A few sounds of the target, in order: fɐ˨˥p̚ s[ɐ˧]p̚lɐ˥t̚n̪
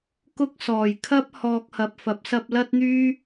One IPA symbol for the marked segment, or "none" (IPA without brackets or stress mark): ɐ˧